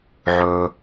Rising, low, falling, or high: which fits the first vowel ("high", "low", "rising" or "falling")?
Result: low